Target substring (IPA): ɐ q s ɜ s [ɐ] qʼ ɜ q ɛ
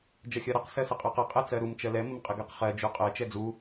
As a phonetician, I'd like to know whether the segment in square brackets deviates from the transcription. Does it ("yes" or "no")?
yes